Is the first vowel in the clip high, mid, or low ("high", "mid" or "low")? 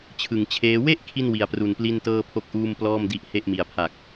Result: high